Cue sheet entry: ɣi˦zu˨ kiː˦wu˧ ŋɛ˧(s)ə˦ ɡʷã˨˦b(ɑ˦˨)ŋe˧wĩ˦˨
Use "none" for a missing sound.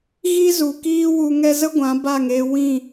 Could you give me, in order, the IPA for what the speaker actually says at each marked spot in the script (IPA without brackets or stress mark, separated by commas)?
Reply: z, a˦˨